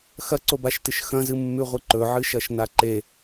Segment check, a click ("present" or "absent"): present